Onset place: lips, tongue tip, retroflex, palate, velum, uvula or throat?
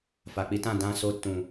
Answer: lips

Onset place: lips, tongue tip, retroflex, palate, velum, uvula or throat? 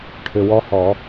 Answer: retroflex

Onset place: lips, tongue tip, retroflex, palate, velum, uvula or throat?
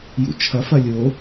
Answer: palate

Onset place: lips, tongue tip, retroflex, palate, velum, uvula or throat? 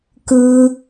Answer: velum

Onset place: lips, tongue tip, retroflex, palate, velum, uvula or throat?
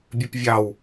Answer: lips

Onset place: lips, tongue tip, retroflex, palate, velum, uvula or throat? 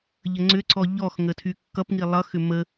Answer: palate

